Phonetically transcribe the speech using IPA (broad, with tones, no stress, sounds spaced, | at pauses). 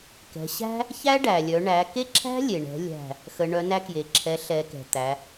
k ɛ̤˩˧ ɕ æ̤˥ | ç æ˥ ɖ æ˩ lʲ œ˩˧ ɳ æ˩˧ k e˥ ǁʰ æ̤˥ lʲ e˩ ɳ ɛ̤˩˧ lʲ æ̤˥˨ | x ə˩˧ ɳ œ˩˥ n æ˥ k j e˩ ǁʰ ɛ˩˥ ɬ ɛ˩˧ k ɛ̤˩ t̪ æ˩˧